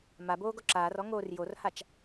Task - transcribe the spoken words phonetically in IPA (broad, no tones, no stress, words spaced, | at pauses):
maboː ɡɔǁaːrɔ ŋoːrjorhat͡ʃ